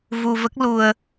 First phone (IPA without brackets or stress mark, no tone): v